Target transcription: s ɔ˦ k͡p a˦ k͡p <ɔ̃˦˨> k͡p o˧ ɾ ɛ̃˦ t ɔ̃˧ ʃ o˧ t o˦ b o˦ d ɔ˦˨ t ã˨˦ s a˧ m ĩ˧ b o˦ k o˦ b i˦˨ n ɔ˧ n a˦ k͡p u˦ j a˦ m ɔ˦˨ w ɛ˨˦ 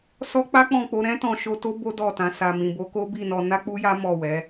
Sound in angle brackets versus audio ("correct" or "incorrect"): correct